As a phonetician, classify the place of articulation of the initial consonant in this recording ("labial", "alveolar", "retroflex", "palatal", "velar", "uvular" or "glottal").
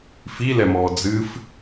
labial